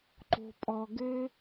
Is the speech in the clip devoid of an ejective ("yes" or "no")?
no